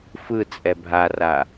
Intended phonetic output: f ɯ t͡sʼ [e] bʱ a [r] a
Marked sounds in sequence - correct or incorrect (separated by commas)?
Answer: incorrect, correct